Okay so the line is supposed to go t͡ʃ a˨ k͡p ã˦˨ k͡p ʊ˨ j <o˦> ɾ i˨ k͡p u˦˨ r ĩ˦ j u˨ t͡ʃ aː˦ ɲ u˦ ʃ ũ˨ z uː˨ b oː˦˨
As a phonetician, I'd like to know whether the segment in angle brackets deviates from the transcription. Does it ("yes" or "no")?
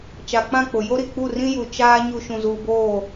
no